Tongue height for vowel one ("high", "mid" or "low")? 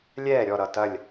mid